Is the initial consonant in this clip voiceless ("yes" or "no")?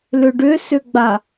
no